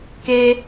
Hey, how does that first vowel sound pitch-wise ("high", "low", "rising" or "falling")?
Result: high